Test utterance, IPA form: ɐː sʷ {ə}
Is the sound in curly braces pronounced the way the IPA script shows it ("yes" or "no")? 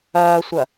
no